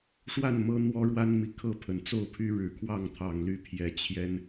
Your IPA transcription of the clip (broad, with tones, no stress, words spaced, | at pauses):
ʂwa˥˨n mɤ˦ n̪wɔ˦ɻwa˦nmi˨ kʰɤ˥˨pʰə˨˩nt͡so˥˨ʊ̯pʰy˦ ɻɻ̩˨˩kʰwɑ˥˨ŋ t̪ʰɑ˨˩ŋly˨˦pʰjɛ˨˦ t͡ɕʰjɛ˦n